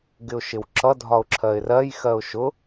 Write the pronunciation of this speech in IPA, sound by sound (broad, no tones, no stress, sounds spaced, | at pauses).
ɡ ɪ ʊ̯ ʃ ɪ w ǁ ʌ dʱ ɒ ʊ̯ ǁʰ ɜ ɪ̯ r ɜ j x ɜ ʊ̯ ʃ ʊ